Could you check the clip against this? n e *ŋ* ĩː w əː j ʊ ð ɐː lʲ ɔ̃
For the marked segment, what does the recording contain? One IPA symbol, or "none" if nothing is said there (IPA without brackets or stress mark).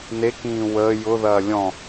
k